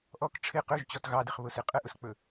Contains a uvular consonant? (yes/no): yes